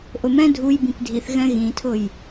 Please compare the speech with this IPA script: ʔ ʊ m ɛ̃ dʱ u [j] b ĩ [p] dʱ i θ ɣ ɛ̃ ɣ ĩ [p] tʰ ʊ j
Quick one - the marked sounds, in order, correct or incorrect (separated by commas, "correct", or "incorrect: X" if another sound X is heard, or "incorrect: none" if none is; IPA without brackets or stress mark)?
correct, correct, incorrect: none